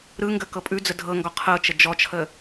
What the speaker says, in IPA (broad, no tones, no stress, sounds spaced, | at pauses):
ɾ ɯ ŋ ɡ ə k ɤ pʼ ʉ d͡z ə dʱ ɤ ŋ ɡ ɔ qʰ ɤ t͡ʃ ə d͡ʒ ɔ t͡ʃʰ ə